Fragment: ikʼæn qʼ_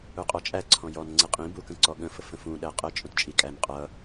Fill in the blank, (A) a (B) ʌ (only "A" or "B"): B